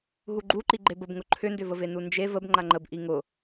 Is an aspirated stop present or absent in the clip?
present